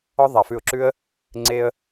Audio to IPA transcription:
ɔ˥ðˤa˧fʉ˥˩ʊ̯ǁʉ˥ə̯ | ŋ͡ǀe˥ə̯

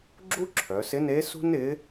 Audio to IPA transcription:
ɡ͡ǁu˥ǁʰœ˩˧sɪ˧˥ne˧˥ sṳ˥nɪ˧˥

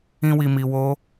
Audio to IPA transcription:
ĩ˧wi˨mi˨ wo˧

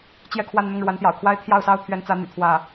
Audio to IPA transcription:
t͡ɕjɛ˥˧kʰwa˥˧n n̪ʊ˥˩ŋɻwa˧˥nt̪jɑ̰˨˩ʊ̯kʰwa˥ɪ̯ t̪ʰjɑ˥˩ʊ̯sɑ˥ʊ̯t̪ʰɥɛ˧˥nt͡sä˧˥ n̪y̰˨˩t̪ʰwä˥˩

